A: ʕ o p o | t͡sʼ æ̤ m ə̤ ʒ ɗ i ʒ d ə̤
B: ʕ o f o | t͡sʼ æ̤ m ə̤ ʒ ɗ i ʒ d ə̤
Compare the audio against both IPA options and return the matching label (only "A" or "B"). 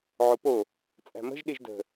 A